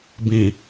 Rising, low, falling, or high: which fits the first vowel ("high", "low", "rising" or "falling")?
low